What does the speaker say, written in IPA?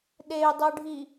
ɗ e y̯ dˤ u ɖʱ i

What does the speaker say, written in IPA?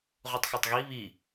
ʁ u tˤ x o tˤ ɣ i β i

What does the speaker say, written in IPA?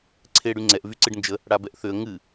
ǀʰ ɪː ɽ y ŋ͡ǀ ɛ ʔ v y ǀ ɨ ɖ n d͡ʒ ə | ɽ a b ɛ ʔ θ ʏ ə̯ ŋ ɨ

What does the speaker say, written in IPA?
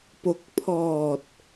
p o˦˥ k̚ pʰ ɔː˨˩ t̚

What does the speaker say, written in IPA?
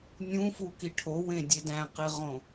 nʲ ũ f u k i ʈʰ o w ẽ dʲ e d æ̃ q i ʁ õ

